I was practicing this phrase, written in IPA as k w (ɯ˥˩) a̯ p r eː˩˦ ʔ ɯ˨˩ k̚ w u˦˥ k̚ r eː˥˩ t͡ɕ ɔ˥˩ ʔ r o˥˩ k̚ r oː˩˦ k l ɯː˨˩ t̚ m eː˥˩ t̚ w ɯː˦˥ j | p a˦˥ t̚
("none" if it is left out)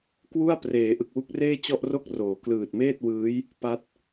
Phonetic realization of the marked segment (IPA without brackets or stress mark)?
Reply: u˥˩